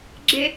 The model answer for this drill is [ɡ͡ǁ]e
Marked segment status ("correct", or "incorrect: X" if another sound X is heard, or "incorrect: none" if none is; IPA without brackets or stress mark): correct